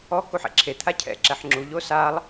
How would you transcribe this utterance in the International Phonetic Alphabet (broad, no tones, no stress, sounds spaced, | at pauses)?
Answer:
ɔ k u ħ ɛ̰ ǁʰ e t̪ʰ a cʰ ɛ̰ ǁ ɛ ħ ŋ͡ǁ u ʎ o s a lˠ